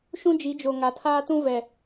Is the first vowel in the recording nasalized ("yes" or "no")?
yes